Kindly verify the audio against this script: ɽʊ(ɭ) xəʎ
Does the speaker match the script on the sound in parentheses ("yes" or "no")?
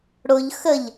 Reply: no